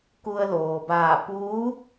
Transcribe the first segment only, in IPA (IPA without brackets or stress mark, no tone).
k